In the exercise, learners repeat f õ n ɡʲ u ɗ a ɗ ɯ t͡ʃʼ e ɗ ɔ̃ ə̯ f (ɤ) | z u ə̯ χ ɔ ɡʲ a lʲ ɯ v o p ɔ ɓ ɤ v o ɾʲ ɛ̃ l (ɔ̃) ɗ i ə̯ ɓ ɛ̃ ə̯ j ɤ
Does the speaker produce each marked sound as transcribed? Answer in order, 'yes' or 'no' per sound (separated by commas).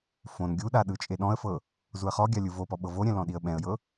yes, yes